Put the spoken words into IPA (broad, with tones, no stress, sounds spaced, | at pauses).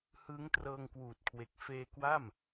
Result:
h ɯː˦˥ ŋ t r ɤː˧ ŋ k w uː˨˩ t̚ kʰ w e˨˩ k̚ f eː˧ k w a˥˩ m